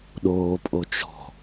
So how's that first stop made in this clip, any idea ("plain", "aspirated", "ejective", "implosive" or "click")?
implosive